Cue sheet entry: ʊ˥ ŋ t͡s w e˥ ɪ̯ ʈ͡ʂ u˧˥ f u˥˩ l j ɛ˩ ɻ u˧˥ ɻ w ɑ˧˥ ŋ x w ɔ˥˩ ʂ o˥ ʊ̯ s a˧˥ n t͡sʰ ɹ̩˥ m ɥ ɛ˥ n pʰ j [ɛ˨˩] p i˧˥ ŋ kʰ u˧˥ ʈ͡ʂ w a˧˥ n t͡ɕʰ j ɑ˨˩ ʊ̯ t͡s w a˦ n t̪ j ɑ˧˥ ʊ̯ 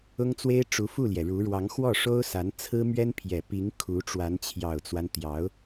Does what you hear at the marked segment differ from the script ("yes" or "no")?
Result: no